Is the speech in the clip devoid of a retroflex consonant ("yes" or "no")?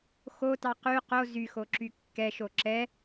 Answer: yes